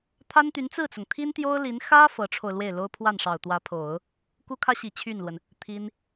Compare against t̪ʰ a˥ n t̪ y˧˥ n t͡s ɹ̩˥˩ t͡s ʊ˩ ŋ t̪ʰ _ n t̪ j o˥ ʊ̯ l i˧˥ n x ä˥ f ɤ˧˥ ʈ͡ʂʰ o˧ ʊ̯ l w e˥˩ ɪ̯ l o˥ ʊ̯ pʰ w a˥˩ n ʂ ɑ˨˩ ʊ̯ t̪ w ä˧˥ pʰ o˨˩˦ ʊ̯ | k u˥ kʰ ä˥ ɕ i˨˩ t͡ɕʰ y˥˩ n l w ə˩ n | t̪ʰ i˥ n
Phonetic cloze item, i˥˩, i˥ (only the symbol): i˥